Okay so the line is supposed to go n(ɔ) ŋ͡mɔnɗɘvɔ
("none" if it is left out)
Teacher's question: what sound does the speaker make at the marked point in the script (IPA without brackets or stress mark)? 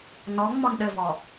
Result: ɔ